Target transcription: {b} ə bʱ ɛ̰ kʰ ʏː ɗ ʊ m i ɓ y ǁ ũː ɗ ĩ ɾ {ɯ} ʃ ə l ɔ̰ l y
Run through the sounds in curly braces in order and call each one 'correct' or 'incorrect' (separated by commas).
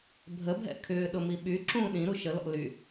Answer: incorrect, incorrect